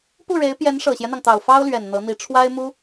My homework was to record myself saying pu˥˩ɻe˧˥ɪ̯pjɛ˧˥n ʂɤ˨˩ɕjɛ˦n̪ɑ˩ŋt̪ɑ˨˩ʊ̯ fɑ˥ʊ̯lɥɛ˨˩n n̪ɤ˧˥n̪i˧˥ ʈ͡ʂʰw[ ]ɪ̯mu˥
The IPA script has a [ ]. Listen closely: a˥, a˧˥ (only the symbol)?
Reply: a˥